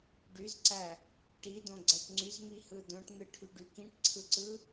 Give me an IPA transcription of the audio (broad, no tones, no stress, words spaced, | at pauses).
ɖyzǀæ | ʈidõɡ͡ǀæʈ ŋ͡ǀyzmihɯ dõʈn̪ɯʈʰyɖy kĩʈǀʰɯǀɯ